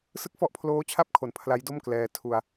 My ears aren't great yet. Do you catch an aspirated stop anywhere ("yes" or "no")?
yes